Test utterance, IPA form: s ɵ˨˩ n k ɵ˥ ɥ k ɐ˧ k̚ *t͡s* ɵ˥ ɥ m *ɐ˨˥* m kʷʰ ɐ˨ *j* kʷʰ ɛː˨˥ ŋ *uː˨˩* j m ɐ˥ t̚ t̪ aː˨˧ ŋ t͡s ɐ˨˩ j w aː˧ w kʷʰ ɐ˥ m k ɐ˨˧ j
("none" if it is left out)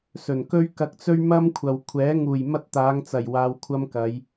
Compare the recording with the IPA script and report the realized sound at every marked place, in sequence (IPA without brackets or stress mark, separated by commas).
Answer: t͡s, ɐ˥, w, uː˨˩